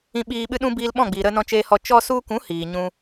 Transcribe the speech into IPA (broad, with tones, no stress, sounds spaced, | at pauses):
ĩ˧ ɓ iː˧ ɓ ɨ˦ ɗ ũ˦ b iː˧ l ɓ ɔ̃˦˨ ɡ͡b iː˨ ɾ ə˧ n ɔ̃˧ t͡ʃ eː˧ h ɔ˧ t͡ʃ ɔ˧ s u˧ k ũ˨˦ h iː˨ ɲ ũ˦